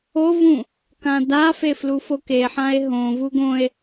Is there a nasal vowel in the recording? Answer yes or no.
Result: yes